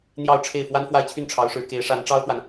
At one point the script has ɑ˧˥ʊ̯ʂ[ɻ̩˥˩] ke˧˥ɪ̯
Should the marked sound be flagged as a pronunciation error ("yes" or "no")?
yes